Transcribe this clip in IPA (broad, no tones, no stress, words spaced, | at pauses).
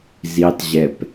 zitˤʑɛp